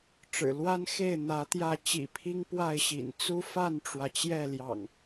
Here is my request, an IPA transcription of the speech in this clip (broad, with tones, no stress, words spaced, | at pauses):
ʈ͡ʂɻ̩˨˩ lwa˦nxe˥˨ɪ̯ n̪ä˨˦t̪jä˥˨ t͡ɕḭ˨˩pʰi˦ŋ pwa˥˨ɪ̯ɕḭ˨˩n t͡su˦fa˥˨nʈ͡ʂwä˩ t͡ɕjɛ˥˨ljɑ̰˨˩ŋ